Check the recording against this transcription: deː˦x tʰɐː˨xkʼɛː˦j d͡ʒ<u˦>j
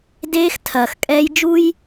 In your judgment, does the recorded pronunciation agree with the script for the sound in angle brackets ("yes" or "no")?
yes